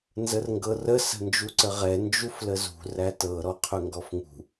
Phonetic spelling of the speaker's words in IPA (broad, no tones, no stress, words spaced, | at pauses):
nzərŋɡɤrə sə̤nd͡ʒuǀəʁɛ nd͡ʒufləzṳ rætɤ ɾɔqʰɵŋɡɔfŋṳ